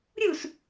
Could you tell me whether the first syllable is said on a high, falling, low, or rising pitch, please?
falling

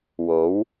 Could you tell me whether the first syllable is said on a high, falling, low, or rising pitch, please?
rising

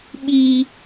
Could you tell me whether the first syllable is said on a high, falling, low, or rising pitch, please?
low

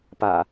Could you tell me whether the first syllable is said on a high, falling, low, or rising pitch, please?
low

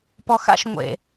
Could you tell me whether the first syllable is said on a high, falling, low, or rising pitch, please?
low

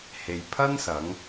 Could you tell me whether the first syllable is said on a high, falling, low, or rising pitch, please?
low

